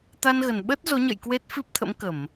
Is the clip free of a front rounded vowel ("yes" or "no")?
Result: yes